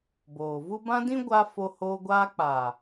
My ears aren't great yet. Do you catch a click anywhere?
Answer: no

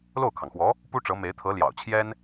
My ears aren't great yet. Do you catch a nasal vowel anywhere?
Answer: no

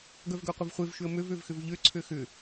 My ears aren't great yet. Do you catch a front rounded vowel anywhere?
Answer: yes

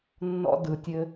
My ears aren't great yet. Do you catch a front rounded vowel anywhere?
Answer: no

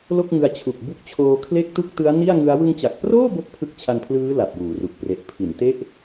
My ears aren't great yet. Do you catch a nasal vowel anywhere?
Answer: no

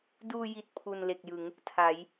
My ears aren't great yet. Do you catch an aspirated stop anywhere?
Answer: yes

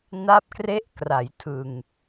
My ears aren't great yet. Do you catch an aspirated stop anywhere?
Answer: yes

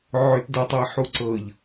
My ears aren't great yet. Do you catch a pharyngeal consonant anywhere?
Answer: yes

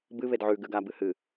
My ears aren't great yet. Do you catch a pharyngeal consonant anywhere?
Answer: yes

